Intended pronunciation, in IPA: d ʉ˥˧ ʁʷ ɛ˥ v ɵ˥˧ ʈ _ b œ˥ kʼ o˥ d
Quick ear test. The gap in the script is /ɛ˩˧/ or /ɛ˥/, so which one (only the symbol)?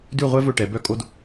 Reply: ɛ˩˧